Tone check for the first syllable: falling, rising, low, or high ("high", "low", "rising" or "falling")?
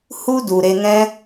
high